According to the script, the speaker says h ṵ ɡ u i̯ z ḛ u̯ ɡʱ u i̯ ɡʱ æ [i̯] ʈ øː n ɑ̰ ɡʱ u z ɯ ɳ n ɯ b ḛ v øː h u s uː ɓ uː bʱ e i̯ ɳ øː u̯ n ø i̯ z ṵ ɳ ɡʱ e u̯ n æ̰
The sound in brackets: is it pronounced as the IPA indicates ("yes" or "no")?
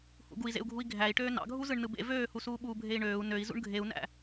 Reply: yes